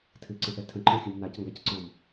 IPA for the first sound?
tʰ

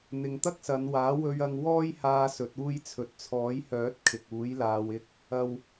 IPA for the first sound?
n̪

